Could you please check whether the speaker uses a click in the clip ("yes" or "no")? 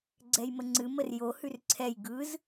yes